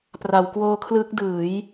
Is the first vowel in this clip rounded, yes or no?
no